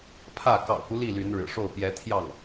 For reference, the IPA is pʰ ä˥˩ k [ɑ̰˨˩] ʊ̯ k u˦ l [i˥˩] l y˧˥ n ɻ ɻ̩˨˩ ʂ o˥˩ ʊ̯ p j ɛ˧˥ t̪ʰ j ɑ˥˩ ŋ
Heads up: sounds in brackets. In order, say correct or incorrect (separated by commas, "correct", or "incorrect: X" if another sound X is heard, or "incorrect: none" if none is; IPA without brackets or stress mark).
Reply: correct, correct